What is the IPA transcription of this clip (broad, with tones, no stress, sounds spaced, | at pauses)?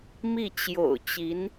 m i˥˩ t͡ɕ j o̰˨˩ ʊ̯ t͡ɕ i˧˥ n